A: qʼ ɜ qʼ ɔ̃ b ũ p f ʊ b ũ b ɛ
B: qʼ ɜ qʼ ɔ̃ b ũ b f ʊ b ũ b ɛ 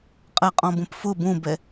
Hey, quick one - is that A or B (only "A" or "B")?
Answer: A